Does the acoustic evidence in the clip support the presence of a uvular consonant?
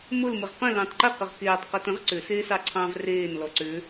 yes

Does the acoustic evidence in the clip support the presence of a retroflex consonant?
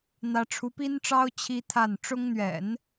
yes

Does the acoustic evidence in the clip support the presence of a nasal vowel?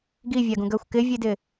yes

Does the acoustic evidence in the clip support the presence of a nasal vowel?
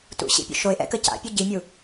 no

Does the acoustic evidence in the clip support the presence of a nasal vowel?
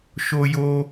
no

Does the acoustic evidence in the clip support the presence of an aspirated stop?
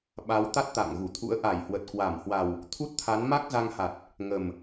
yes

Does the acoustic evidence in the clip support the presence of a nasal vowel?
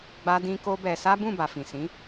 yes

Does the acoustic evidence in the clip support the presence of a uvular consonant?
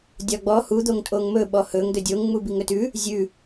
no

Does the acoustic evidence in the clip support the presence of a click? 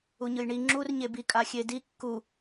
yes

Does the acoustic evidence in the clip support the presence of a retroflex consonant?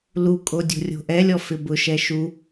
no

